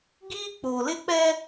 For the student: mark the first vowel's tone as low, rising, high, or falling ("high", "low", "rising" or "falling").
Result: high